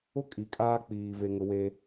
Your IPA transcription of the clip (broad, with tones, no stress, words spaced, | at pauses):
ʊ˦ kʼi˨kʼaː˦k͡piː˨ ve˨ŋʊ˨we˦